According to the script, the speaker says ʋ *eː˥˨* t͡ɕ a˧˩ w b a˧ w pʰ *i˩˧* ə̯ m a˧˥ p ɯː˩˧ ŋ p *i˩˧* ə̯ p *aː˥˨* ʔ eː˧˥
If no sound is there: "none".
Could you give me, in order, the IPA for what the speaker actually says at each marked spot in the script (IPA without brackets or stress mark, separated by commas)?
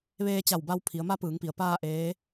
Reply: eː˧, i˩˧, i˩, aː˥˨